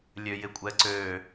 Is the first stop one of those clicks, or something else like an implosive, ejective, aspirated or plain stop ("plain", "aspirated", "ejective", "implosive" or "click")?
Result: ejective